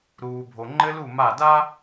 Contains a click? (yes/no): yes